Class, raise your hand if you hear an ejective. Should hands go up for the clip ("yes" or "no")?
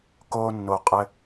yes